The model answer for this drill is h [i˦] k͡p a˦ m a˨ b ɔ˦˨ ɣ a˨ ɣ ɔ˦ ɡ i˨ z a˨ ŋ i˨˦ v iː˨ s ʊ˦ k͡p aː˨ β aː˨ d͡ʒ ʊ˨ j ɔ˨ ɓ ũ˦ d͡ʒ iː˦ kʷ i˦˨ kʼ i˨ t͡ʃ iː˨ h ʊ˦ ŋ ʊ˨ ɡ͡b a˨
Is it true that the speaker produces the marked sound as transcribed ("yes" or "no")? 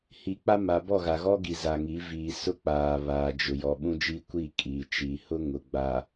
no